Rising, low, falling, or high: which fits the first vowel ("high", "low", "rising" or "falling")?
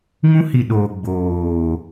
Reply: high